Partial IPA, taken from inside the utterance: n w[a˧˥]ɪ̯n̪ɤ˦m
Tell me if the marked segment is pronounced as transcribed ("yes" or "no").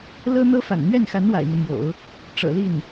no